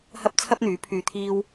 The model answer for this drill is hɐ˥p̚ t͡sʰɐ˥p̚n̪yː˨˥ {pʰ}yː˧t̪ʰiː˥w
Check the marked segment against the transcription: correct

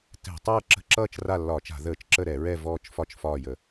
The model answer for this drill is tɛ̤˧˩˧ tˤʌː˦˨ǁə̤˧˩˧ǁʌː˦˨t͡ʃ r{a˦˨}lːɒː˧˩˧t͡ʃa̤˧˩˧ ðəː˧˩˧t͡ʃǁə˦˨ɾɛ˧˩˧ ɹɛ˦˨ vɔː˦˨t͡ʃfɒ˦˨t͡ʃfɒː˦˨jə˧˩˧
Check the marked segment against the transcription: correct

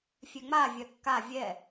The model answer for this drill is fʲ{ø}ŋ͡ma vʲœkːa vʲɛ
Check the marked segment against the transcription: correct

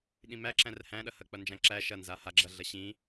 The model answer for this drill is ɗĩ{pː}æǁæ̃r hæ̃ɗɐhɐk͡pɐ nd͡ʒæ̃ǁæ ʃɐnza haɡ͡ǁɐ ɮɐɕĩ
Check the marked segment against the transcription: incorrect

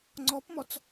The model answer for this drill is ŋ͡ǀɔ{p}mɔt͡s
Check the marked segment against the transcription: correct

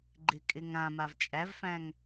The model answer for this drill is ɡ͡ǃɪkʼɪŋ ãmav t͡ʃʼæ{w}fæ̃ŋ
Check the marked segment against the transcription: incorrect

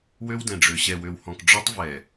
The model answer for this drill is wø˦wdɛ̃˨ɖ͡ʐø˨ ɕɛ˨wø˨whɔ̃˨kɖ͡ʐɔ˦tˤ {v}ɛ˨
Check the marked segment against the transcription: correct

